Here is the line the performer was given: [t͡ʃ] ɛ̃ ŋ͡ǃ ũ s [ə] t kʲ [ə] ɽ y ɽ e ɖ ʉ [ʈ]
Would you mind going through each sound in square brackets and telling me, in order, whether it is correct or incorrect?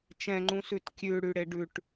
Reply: correct, incorrect, incorrect, correct

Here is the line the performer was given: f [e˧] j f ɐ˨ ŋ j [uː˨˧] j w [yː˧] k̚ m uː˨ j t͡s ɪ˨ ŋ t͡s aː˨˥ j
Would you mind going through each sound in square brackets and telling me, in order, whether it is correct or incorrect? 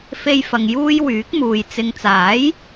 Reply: correct, incorrect, incorrect

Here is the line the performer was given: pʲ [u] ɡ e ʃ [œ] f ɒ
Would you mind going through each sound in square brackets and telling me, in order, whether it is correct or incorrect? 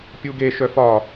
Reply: correct, correct

